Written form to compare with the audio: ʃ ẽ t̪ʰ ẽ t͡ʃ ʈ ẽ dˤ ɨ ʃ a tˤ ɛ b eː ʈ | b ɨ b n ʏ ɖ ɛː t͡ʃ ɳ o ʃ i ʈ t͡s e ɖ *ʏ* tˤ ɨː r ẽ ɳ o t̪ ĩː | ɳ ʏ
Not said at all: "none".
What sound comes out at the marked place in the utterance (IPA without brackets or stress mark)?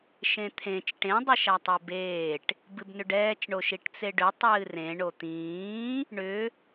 ʏ